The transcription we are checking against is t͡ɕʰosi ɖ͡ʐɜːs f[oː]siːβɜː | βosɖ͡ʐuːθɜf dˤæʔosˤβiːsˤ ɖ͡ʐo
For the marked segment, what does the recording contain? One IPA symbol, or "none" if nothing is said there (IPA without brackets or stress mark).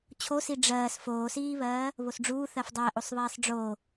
oː